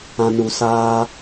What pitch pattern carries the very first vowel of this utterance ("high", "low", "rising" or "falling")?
low